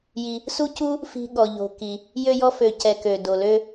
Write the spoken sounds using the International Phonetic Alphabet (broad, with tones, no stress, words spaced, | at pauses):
ji˨ | su˥cu˥ | fi̤˦ɠɔ˨ʎo̤˨ki˩ | jø˦jɔ˦fø˨ cɛ˨kø˩ do˩lø˦